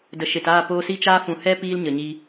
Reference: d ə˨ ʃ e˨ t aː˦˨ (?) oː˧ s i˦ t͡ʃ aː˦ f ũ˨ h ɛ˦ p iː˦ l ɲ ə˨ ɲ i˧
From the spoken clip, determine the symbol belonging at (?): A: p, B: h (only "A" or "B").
A